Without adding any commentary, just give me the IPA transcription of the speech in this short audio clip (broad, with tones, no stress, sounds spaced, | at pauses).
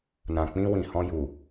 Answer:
n ã˨ k͡p ĩ˧ w ĩ˨ h ɔ̃˧ j u˨